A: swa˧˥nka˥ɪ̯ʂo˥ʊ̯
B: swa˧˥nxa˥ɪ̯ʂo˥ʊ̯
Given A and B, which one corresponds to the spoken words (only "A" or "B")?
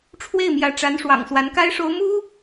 A